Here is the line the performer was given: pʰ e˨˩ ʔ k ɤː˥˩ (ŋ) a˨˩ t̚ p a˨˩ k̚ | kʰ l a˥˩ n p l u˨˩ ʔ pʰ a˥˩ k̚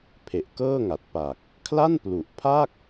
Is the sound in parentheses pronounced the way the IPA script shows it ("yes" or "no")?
yes